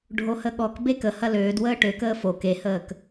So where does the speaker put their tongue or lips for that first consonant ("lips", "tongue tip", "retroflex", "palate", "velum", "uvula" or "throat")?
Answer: retroflex